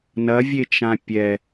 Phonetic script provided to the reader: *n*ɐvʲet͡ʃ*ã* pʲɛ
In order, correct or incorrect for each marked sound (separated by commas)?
correct, correct